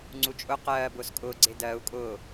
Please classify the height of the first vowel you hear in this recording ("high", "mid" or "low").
high